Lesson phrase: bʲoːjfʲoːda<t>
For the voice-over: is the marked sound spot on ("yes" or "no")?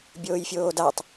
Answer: no